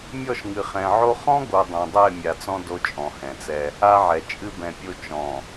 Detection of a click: absent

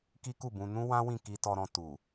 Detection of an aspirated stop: absent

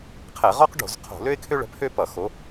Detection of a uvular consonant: present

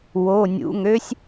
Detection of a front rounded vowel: present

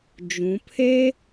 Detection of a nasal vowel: present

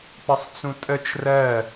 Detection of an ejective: present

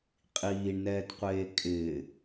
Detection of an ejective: present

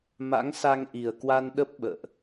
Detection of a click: absent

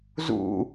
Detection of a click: absent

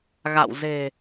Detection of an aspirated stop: absent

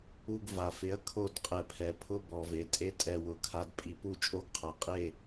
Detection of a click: absent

